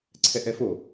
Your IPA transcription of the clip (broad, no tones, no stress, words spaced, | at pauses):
ǀʰɛʔɛfo